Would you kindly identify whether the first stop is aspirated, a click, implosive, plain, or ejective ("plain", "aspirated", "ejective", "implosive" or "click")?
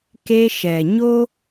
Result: plain